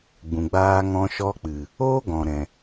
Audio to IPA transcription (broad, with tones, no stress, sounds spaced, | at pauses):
ɡ͡b ũ˨ ɡ͡b aː˧ ŋ ɔ̃˧ ʃ ɔ˧ k͡p ɨ˨ | oː˦ ɡ ɔ̃˨ ɾ ɛ̃˨